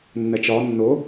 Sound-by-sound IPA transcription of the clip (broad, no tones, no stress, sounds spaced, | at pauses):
nː ɛ t͡ʃ ɒ nː ʊ